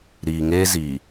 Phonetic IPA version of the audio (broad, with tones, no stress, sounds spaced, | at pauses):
ɾ iː˨ ŋ eː˦ z iː˨